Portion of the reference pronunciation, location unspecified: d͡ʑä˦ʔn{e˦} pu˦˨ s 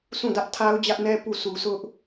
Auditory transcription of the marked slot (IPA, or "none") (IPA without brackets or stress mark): ɛ˦